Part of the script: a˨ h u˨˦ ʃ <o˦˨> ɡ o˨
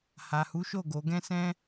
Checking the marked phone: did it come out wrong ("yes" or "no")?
no